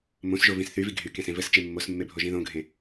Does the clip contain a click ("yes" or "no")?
no